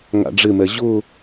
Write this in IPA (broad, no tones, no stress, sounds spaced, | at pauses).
ŋ a̰ ɖ͡ʐ ɪ m ɛ ʑ ʊ